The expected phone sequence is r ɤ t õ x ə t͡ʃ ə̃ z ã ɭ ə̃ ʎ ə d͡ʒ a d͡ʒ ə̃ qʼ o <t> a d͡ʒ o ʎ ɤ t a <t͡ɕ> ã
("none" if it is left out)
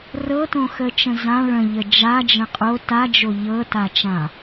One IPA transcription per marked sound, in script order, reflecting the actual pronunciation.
t, t͡ʃ

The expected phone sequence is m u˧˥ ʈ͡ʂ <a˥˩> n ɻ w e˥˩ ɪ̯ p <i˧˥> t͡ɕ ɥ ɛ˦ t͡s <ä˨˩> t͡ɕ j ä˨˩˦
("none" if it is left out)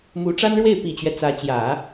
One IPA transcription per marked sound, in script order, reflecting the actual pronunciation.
a˥, i˨˩, ä˧˥

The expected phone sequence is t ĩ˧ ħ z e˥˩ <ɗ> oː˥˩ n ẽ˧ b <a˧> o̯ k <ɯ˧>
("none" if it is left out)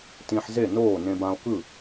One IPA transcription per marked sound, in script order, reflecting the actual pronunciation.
n, ã˧, ɯ˥˩

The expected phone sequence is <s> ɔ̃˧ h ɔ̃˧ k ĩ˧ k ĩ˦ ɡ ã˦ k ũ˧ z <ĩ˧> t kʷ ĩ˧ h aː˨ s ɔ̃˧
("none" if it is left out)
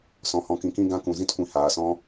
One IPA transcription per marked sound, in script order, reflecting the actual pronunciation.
s, ĩ˦

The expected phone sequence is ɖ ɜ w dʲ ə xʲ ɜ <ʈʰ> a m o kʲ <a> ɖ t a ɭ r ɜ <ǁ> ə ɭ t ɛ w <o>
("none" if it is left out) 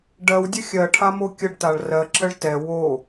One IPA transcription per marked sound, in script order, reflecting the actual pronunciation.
ʈʰ, ə, ǁ, o

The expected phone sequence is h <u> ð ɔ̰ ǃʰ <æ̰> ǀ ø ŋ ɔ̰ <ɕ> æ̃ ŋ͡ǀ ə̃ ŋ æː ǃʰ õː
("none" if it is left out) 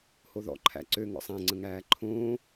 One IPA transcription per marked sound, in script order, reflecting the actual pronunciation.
o, æ̰, sˤ

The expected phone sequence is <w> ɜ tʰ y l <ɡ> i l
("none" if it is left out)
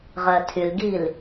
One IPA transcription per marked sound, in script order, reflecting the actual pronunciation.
ʁ, ɡ

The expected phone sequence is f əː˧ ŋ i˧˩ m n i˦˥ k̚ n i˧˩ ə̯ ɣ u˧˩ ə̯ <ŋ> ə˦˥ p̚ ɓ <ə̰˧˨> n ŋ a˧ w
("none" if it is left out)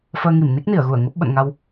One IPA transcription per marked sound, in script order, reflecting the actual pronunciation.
ŋ, ə̰˧˨

